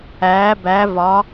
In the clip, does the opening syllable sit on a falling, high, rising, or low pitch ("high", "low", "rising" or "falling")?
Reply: rising